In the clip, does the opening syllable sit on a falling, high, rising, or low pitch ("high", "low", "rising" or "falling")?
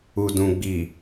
low